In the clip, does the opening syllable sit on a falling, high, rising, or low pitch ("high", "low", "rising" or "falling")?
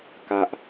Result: low